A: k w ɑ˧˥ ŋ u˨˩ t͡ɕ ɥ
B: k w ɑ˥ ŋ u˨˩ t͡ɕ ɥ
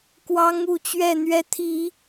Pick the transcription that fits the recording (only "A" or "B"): A